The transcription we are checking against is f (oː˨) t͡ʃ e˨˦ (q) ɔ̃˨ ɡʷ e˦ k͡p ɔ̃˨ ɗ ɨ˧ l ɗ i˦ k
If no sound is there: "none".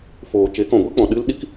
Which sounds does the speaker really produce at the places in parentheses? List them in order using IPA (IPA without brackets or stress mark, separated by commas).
oː˨, k